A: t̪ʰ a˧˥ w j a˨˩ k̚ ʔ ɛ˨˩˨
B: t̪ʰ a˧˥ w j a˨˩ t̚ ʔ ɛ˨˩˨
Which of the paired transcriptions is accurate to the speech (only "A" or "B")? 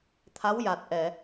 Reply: B